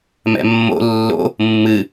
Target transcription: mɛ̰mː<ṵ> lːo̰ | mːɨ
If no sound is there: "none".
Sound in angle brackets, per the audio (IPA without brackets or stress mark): o̰